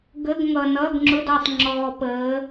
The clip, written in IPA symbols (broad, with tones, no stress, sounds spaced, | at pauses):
ɡ ə˧˥˧ ɡ ŋ ʌ˨ n ʌ˧˥˧ ɡ ŋ͡ǁ ʊ˧˥˧ d ɒ˨ tˤ ŋ͡ǁ ɔː˨ p əː˨˦